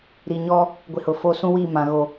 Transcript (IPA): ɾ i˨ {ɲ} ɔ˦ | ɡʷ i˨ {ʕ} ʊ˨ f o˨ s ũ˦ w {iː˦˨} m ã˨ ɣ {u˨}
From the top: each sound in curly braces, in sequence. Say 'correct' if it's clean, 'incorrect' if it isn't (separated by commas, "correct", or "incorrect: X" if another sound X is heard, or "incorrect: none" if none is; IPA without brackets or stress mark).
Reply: correct, incorrect: h, correct, incorrect: o˨